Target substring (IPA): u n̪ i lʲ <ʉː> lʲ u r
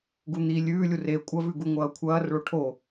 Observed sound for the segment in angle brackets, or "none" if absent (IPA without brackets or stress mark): ʉː